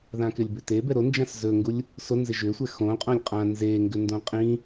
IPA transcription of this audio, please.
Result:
ðãkɪlʲbʏte bɛɾond͡ʒãs zɵŋɡulʲ | sonzɪ ʒʏ sʷɛxõ qʼõlʲqʼã nzeŋɡʏ ndõqʼĩ

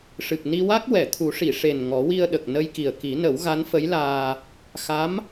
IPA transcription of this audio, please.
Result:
ʂɨ˨˩k̚ ni˧wa˦˥k̚ wɛ˨˩˨t̪ʰu˨˩˦ʂi˨˩˨ʂe˨˩n ŋɔ˨˩˦wi˧ə̯ɗə˨˩k̚ nə˧jki˨˩ə̯ ki˨˩˦nə˨˩˦w ɣa˧˥nfə˧˥jlaː˧ | xa˧˥m

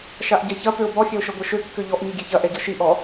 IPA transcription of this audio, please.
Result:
ʃaʔɟɛçɐ pøʊ̯bɔ xʲøʊ̯ʃɤɡʷɤʃø kːøʎɔʔ ɲiɡʲeçɐ ʔɛɟɤʃi ʔɔ

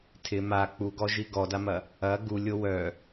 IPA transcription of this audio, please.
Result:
tʰɪ ma k͡puɡɔʒi ɡɔdamɐ | ɐ ɡulʲo wœ

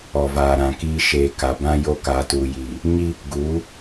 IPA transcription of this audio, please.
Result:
ɔ˨vaː˨ɾã˨kiː˦ ʃeː˨ ka˨ bã˦jo˦ kaː˨tuː˨jiː˨ | ɲi˦ | ɡuː˨˦

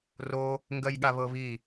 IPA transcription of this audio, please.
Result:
ro | ŋɡɜjɠaβɤβi

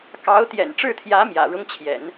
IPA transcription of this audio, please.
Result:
kɑ˧˥ʊ̯t̪jɛ̰˨˩nʈ͡ʂɻ̩˥˩t̪ʰjä˧˥ mjä̰˨˩ɻʊ˥ŋt͡ɕʰjɛ̰˨˩˦n

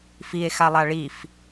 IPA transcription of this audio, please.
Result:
fie̯ xalˠaɭif

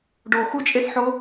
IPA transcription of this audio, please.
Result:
ɖo xut͡ʃʼesħo

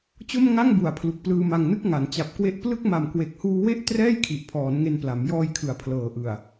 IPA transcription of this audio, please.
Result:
t͡ɕo˥˩mŋa˥˩ŋbu˨˩a̯ pʰlu˨˩k̚plɯː˧ma˧ŋnɯ˥˩k̚ ŋa˩˦n t͡ɕa˨˩p̚kwe˦˥ʔplɯ˥˩k̚ ma˨˩mkwe˨˩k̚huː˧ we˥˩ʔ trɛː˥˩jkʰi˨˩ʔpʰɔː˩˦n ŋe˧npla˩˦m jɔː˧j kʰɯ˨˩a̯pʰlɤː˨˩ʔɯ˨˩a̯

